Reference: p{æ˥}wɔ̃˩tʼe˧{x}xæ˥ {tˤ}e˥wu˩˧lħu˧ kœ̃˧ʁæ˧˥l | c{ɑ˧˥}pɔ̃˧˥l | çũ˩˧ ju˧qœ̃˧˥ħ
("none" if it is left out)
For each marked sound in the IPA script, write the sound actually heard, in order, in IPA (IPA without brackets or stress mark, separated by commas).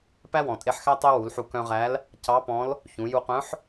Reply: æ˥, ħ, tˤ, ɑ˧˥